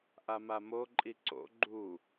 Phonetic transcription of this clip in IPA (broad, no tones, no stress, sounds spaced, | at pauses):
ʔ a m a m o ǃʼ i ǀ o̰ ɡ͡ǃ u